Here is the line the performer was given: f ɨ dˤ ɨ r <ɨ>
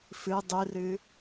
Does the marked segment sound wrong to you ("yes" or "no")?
no